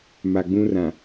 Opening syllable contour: low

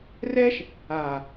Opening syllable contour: high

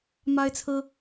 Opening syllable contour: high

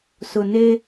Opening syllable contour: low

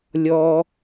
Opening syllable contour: low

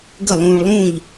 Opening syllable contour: falling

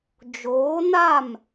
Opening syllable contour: rising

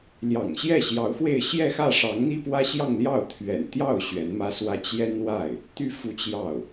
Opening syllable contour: low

